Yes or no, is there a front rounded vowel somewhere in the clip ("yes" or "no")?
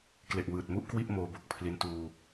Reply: no